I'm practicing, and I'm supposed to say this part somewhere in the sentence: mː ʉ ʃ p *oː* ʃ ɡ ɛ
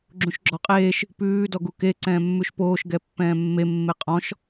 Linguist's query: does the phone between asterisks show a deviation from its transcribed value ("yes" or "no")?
no